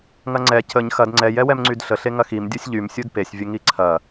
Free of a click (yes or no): no